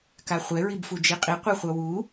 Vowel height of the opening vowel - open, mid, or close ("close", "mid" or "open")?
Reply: open